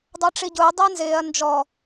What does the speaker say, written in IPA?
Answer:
dˤ ɑ ʈ͡ʂ i ɟ ʊː dˤ æ n z ɪː ɐ̯ n d͡ʒ ɔ

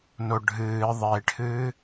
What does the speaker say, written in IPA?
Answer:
n o ɖʱ ɨː ðˤ e ʈʰ ɨː

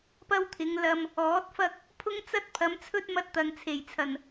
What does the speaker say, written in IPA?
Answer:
p ɐ˥ w t̪ʰ ɪ˨˧ ŋ l ɐ˧ m | ɔː˨˥ t̚ f ɐ˥ k̚ | pʰ ʊ˥ ŋ t͡s ɐ˥ t̚ pʰ ɐ˨˧ m t͡sʰ ɵ˥ t̚ m ɐ˧ t̚ t̪ ɐ˨ ŋ t͡sʰ e˨˩ j t͡sʰ ɐ˨˩ n

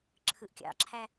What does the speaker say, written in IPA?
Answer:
ǁʰ ɯ ʔ kʲ ɑ̰ ǁʰ æ

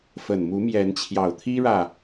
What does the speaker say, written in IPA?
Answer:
f ə˨˩ n m u˨˦ m j ɛ˨˦ n t͡ɕʰ j ɑ˨˩ ʊ̯ t̪ʰ i˦ ɻ ä˨

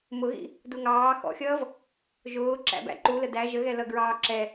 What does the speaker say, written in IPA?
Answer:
m ʊ ɣ ḭ | d u ŋ ɑː x ɔ̰ xʲ ʌː v | ʒ ʊː ǁ æ̰ b æ̰ ǃ u l ə d æ ʒ ə ɣ ɛ l ʌ ɡ ɹ ɑː ǁ ɛ

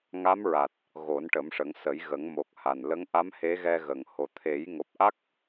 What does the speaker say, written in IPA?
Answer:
ŋ a˧˥ m ɹ a˨˩ t̚ | ɣ o˨˩˦ n ʈ ə˨˩˦ m ʂ ə˨˩˦ ŋ s ə˨˩˦ j ɣ ə˨˩˦ ŋ m o˨˩ k̚ h a˨˩ n l ə˧˥ ŋ ʔ a˧˥ m h e˧˥ ɣ ɛ˧ ɣ ə˨˩ ŋ h o˨˩ t̪ʰ e˨˩˦ j ŋ o˨˩ p̚ ʔ a˦˥ k̚

